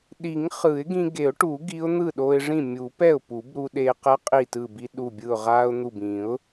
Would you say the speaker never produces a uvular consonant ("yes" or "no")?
no